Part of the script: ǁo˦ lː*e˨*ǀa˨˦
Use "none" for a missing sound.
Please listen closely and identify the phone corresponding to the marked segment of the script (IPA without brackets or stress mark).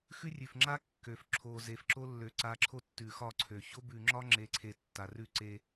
ø˨